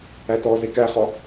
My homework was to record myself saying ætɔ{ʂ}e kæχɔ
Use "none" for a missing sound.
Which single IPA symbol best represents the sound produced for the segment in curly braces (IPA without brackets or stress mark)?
z